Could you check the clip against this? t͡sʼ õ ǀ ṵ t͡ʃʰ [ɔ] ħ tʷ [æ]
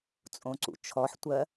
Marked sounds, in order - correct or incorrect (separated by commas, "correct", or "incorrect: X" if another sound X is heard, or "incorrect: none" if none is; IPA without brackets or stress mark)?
correct, incorrect: ɜ